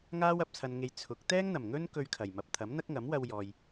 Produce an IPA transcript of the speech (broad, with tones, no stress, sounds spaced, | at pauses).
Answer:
ŋ aː˥ w ɐ˧ p̚ t͡sʰ ɐ˧ n ŋ e˧ j t͡sʰ ʊ˨˥ k̚ t̪ ɛː˥ ŋ n̪ ɐ˨˩ m ŋ ɵ˥ n k ɵ˧ ɥ kʰ ɐ˨˩ j m ɐ˨ p̚ t̪ʰ ɐ˨˥ m n̪ ɐ˥ k̚ ŋ ɐ˨˥ m w ɐ˧ w j ɔː˨ j